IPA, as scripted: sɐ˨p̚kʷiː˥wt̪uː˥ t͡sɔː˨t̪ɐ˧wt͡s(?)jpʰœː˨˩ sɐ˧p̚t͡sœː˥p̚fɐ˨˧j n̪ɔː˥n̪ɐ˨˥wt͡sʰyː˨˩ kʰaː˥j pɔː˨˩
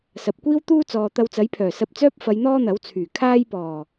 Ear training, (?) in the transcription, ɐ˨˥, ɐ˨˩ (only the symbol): ɐ˨˥